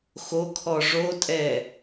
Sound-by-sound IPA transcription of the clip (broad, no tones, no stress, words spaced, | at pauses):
xokʰɔ ʐotʼɛ